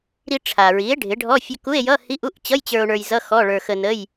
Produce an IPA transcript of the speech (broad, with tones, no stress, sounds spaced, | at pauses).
ɾ i˧ ʈ͡ʂʰ a˩ ɹ i˩˥ e̯ ɖʱ ɪ˩˥ ɖʱ ɔ˧˥˧ fʲ ə˧ k u˧˥˧ e̯ j ʌ˧˥˧ h i˧˥˧ ʔ u˧˥˧ ʔ t͡ɕ ʌ˧˥˧ j t͡ɕ ə˞˧ o̯ ɳ ə˞˧ j z ʌ˧˥˧ x ɔ˧˥˧ ɭ ə˞˧ x ə˧ n ə˧˥˧ j